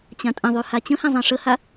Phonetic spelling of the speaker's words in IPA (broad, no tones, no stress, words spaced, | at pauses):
t͡ɕãtʼə̃ðˤy hat͡ɕə̃hẽ zˤẽʂəha